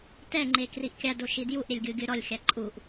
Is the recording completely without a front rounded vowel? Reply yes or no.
yes